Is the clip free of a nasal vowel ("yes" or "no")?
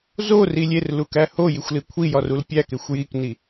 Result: yes